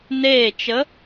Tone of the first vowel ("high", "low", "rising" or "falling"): falling